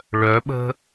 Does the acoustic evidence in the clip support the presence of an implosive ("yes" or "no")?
yes